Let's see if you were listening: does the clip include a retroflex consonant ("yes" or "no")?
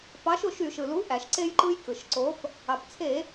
no